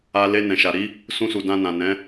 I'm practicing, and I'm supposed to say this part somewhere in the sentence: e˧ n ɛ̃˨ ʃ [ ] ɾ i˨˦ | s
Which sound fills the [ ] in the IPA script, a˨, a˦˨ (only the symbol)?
a˨